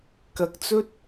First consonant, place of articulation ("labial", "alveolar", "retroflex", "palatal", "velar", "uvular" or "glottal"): velar